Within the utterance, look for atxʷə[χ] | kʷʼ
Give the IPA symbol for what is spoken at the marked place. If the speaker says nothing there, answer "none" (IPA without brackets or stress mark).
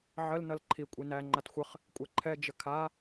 χ